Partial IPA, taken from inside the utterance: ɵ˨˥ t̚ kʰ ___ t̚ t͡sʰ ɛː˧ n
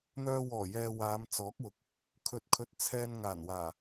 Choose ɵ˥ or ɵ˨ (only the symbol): ɵ˨